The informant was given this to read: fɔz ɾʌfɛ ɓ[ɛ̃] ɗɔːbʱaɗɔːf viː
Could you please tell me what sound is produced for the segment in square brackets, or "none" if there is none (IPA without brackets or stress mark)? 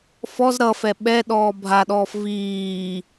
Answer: ɛ